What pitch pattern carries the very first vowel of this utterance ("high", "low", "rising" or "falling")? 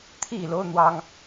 falling